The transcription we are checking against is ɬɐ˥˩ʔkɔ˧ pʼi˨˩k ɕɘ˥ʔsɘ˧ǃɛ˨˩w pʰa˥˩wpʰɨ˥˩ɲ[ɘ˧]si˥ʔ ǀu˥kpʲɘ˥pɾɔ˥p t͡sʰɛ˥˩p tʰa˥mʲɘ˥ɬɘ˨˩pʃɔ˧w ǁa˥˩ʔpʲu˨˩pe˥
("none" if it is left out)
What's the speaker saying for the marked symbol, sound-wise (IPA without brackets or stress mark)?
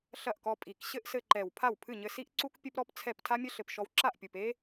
ɘ˧